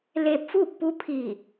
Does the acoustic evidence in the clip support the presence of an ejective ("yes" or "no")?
no